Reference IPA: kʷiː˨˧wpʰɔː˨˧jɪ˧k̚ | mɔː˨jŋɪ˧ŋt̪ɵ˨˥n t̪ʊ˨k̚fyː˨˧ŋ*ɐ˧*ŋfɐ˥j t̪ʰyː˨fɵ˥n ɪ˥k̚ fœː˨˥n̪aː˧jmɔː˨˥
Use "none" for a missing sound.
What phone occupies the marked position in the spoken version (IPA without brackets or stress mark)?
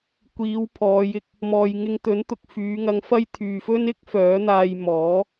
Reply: ɐ˧